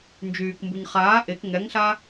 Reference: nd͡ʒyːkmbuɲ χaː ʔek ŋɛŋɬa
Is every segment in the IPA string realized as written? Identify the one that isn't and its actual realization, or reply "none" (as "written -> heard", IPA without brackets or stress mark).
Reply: none